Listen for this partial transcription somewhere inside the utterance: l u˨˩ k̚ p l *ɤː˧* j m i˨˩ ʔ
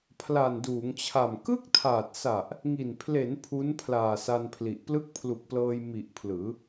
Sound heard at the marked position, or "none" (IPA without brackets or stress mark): ɤː˧